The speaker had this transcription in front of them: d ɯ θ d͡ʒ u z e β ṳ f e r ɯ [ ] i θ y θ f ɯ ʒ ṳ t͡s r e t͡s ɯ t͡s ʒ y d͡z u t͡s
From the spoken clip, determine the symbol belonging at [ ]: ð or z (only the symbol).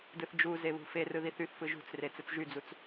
ð